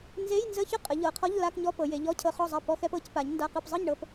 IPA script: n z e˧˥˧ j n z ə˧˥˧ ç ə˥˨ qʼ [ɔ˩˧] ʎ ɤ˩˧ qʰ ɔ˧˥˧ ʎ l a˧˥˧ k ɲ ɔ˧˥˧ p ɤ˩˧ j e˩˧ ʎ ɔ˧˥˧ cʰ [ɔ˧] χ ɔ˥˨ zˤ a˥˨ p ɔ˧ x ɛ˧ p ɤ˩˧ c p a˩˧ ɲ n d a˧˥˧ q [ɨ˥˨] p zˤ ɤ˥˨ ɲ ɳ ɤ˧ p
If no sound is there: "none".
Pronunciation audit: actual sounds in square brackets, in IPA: ə˩˧, ɤ˧, ɨ˥˨

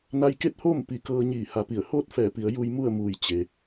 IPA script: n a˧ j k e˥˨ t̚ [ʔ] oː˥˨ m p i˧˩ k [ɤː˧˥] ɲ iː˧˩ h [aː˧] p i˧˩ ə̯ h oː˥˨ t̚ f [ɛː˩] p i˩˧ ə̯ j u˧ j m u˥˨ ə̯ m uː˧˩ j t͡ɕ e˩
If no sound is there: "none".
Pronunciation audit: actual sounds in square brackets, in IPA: h, ɤː˧, a˧, ɛː˧˩

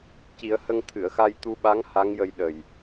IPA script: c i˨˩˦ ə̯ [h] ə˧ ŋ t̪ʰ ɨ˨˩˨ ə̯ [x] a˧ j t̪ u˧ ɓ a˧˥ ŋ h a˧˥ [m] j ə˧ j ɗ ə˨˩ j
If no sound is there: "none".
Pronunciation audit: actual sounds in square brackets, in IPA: h, x, ŋ

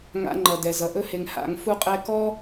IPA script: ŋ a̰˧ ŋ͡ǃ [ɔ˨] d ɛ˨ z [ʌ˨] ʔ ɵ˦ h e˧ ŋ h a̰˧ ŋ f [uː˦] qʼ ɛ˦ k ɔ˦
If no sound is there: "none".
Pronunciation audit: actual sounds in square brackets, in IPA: ʌ˨, ʌ˨, u˦

